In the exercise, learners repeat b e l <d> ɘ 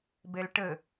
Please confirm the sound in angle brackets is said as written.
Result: no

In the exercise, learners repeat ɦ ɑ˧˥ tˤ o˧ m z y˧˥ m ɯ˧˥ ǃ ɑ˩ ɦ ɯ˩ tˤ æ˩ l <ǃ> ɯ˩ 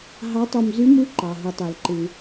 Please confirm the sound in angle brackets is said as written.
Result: yes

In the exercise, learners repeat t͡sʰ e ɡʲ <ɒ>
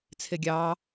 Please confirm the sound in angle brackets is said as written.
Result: no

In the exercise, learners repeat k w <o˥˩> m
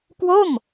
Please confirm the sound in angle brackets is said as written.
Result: yes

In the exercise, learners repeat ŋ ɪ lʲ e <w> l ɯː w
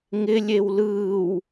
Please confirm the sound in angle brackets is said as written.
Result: yes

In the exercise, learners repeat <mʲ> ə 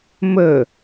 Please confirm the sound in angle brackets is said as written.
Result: no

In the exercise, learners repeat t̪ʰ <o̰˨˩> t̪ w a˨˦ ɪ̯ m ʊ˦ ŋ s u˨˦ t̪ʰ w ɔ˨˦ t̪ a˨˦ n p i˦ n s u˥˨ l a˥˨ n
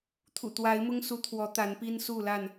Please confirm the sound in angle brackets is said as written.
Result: no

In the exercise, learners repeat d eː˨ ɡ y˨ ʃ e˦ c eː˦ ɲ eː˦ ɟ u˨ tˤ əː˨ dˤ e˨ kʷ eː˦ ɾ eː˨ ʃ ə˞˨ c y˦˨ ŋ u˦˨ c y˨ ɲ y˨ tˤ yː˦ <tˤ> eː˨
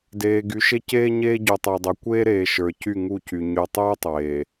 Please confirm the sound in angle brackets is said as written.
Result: yes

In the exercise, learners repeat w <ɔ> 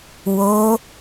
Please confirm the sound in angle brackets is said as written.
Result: no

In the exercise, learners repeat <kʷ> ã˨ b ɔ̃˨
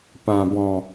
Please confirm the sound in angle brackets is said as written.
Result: no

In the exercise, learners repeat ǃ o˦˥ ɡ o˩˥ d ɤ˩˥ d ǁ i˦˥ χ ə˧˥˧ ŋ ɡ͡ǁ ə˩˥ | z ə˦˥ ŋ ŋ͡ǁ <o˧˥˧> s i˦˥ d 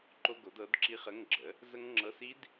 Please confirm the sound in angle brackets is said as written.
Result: no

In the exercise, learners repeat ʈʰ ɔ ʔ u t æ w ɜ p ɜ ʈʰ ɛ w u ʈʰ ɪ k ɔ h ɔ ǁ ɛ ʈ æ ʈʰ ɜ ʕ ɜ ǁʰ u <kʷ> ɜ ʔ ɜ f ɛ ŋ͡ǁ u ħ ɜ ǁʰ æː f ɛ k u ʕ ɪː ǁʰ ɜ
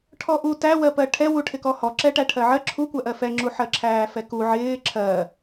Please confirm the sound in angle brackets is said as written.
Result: yes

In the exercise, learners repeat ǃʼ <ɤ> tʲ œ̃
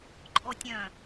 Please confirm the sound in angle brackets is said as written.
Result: no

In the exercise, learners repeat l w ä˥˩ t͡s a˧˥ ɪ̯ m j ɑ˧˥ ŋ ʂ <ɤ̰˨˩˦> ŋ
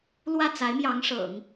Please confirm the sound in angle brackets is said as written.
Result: yes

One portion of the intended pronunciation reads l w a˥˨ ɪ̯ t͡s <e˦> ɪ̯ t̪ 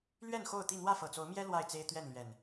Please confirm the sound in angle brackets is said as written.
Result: yes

